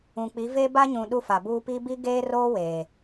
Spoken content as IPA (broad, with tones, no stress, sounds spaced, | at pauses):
ũ˨ k͡p i˨˦ v eː˦ b a˦ ɲ ũ˨ ɗ u˦ f a˨ b uː˦ p i˦ b i˦ ɡ eː˦ r oː˦ w eː˨